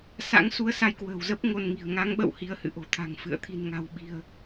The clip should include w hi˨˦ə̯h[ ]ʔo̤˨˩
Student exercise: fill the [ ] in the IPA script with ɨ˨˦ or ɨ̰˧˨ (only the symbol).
ɨ̰˧˨